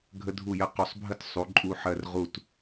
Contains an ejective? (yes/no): yes